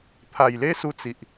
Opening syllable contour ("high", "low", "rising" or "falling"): low